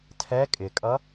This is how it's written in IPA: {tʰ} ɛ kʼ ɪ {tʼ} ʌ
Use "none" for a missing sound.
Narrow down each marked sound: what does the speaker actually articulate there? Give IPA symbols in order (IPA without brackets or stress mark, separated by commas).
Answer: tʰ, kʼ